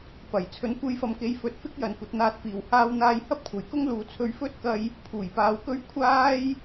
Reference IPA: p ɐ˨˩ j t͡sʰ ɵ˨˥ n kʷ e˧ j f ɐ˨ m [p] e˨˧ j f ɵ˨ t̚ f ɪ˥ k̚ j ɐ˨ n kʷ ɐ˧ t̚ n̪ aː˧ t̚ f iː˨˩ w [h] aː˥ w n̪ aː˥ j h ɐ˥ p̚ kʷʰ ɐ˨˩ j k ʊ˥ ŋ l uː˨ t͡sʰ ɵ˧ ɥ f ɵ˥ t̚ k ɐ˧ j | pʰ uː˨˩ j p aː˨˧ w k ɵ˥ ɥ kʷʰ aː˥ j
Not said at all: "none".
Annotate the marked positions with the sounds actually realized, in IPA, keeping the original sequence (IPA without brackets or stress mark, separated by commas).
k, h